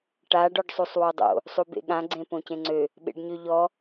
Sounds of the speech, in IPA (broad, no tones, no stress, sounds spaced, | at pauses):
ʈ a ɖ ɔ ɖ sˤ u sˤ w o dˤ o̰ | sˤ u b ḛ ɠ ã ɡ͡ǀ ẽ p õ c ẽ ŋ͡ǀ ø | ɓ ḛ ɖ ɲ ø ʎ ɔ